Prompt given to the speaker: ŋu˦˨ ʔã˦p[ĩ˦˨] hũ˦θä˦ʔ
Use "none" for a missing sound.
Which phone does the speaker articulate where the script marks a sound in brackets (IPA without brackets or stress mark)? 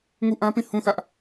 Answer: ĩ˦˨